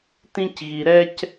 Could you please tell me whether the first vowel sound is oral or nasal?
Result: nasal